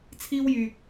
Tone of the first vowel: high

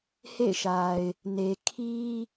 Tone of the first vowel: falling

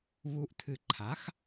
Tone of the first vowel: low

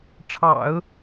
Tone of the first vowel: low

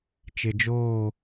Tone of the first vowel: low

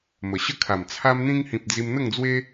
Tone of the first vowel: low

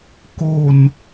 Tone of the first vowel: low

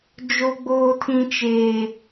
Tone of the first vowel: high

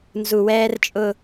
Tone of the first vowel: low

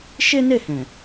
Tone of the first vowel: high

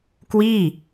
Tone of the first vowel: falling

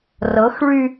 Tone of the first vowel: rising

